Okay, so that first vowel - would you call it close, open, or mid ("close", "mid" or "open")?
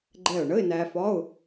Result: mid